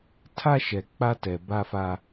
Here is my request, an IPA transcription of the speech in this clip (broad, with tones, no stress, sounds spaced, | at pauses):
tʰ a˦ ʃ ɛ˨ k͡p a˦ t ɛ˨ b a˦ f a˦